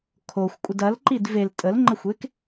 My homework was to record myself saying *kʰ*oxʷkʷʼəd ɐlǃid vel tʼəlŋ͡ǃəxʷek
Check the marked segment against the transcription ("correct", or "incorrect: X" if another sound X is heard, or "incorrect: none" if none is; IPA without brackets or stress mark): correct